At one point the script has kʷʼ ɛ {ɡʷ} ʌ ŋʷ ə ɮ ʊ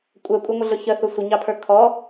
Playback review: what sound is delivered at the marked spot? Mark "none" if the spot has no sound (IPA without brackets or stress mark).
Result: kʷʼ